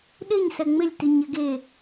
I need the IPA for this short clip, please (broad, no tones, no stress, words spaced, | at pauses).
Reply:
ɗɪɲsɛ ŋ͡mɪlʲtiɲɪ ɡe